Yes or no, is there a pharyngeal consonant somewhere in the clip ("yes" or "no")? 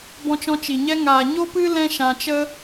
no